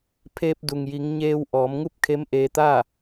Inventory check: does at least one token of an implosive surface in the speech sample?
no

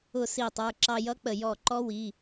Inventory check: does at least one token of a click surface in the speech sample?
yes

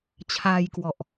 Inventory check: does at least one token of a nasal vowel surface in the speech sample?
no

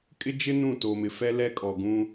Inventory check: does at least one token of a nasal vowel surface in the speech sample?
yes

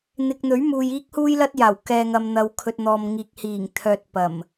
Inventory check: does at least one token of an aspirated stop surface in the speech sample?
yes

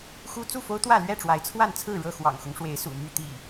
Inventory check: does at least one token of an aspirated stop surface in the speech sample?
yes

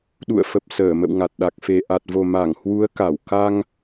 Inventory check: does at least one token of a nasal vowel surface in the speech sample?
no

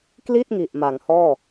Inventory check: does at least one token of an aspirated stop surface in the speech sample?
no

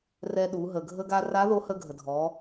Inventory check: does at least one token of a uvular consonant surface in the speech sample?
no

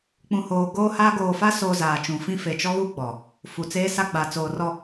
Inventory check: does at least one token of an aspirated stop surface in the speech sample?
no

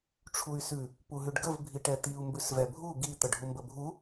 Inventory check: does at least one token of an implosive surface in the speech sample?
no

